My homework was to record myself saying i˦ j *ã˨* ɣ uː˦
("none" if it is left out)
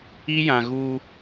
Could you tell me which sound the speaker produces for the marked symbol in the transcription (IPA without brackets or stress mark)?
ã˨